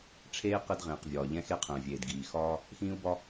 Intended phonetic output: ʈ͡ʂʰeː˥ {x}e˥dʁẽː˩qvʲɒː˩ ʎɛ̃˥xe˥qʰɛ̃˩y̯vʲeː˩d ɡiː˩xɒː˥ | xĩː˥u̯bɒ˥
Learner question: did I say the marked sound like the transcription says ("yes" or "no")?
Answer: no